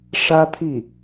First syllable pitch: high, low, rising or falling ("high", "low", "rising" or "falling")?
high